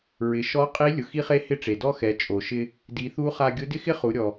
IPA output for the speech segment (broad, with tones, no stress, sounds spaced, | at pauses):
ɹ ɪ˩˧ ʃ ɔ˧˥ qʼ i˧˥ lʲ ʊ˩ x i˧˥ χ e˧˥ h ɪ˧˥ ʈ͡ʂ e˩ d ɔ˥ x ɛ˩˧ t͡ʃʼ o˩ ʃ ɪ˧ | d i˩˧ θ u˧˥ χ a˧ ɡʲ ʊ˧˥ d ɪ˥ x ɪ˥ χ u˩˧ ɾʲ ɔ˩